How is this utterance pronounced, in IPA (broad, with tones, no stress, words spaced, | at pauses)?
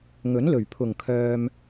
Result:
ŋɵ˨˥nlɵ˨˩ɥ pʰʊ˨˩ŋkʰœː˨m